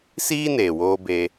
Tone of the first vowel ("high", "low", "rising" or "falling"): high